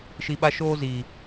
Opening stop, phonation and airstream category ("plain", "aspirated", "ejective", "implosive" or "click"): implosive